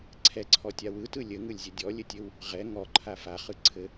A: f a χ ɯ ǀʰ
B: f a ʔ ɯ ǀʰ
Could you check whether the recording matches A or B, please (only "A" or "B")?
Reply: A